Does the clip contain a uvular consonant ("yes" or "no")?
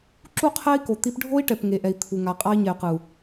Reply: yes